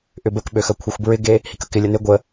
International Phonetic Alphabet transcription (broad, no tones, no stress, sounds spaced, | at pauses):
ʔ ʏ b ə k ɓ ø x ɐ kʷʰ ɐ xʷ b ɹ ɪ ɡ e | h i k ə k ɪ lʲ ə n ɪ ɡʷ ə